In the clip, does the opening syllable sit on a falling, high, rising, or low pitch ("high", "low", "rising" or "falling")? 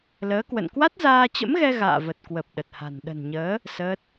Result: rising